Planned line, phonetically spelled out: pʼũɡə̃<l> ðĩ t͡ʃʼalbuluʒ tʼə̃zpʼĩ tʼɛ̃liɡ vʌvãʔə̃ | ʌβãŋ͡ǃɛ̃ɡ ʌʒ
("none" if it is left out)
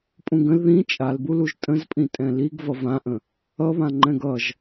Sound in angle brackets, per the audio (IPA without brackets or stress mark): l